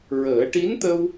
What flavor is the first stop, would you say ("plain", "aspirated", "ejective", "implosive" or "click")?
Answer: plain